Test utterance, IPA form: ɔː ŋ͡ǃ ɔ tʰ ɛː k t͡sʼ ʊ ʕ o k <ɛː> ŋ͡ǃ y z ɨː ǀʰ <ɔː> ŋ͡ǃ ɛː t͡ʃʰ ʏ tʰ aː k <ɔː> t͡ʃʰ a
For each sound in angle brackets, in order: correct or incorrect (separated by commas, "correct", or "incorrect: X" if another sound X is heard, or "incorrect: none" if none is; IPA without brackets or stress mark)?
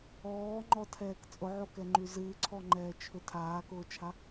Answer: incorrect: ɛ, incorrect: ɔ, incorrect: ʊː